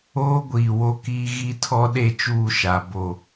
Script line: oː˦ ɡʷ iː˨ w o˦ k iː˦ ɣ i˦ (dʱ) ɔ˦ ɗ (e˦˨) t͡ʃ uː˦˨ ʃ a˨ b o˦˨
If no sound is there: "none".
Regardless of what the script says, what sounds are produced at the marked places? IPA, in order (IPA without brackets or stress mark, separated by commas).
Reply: tʰ, e˦˨